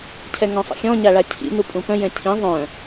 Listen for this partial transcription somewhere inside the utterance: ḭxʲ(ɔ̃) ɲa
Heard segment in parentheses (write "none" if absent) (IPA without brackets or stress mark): ɔ̃